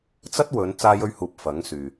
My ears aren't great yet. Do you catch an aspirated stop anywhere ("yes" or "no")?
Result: no